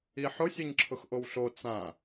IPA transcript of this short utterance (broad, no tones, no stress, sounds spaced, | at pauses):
i ħ ʊ sʲ ɛ ɲ ǁʰ ʊ x ʔ o w ɬ o t͡s ã